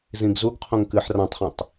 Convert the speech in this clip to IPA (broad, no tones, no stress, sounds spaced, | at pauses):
z ĩ ɡ z u ɡ qʰ õ ŋ k ɨ ħ r ã tˤ χ ĩ tˤ